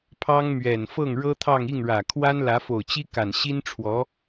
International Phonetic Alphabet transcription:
pʰɑ˥ŋmɥɛ˨˩n fɤ˥˩ŋɻɤ˥t̪ʰɑ˥˧ŋ i˥˩ŋɻä˨˩kʰwa˥n lä˧˥fo˨˩ʊ̯t͡ɕi˥ka˨˩n ɕi˥nʈ͡ʂʰwɔ˧˥

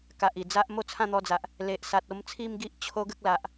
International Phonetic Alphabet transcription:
ka˨ʔi˨˩d͡za˦ʔ mo˥˧t͡sʰã˥˧n̪ɔ˧d͡za˨ʔ | le˨ʔ sa˨t̚o˧mt͡sʰi˥˧mɡi˦ʔ t͡ɕʰo˦ɡə˦k̚la˨ʔ

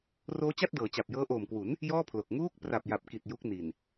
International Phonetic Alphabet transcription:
roː˦˥t͡ɕa˥˩t̚dɤː˩˦ t͡ɕa˨˩p̚jɤː˦˥ʔoː˨˩mkwu˩˦n | jɔː˥˩pʰlo˨˩k̚ ŋuː˦˥k̚ pra˨˩p̚ja˨˩p̚ki˨˩t̚ ju˦˥k̚ ni˨˩n

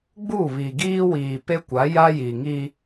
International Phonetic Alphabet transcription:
ɡ͡bu˦˨βi˨ɡiː˦ wiː˨pe˦kʷa˨˦ ja˦ji˨ŋi˦

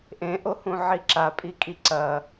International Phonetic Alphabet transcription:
ʔẽʔohũ ʕiǁapʼikʼi ǀɐ

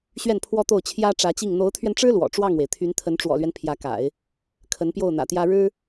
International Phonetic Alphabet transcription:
ɕɥɛ˥˩npʰwɔ˥t̪o˥˩ʊ̯ t͡ɕʰjä˥ ʈ͡ʂä˧˥t͡ɕi˥˩ŋ n̪o˧˥ʊ̯t̪ʰɥɛ˧nʈ͡ʂɻ̩˥ lwɔ̰˨˩ ʈ͡ʂwɑ˥˩ŋwe˩ɪ̯t̪ʰy˧˥nt̪ʰə˧˥n ʈ͡ʂwɔ̰˨˩lɥɛ˦n pʰjä˧˥ka̰˨˩˦ɪ̯ | kʰə˧˥npjo˥˩ʊ̯n̪ä̰˨˩t̪jä˥ ɻɻ̩˥

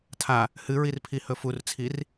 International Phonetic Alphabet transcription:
tʰa | hɨɹirpʰihɵ furt͡sʰir

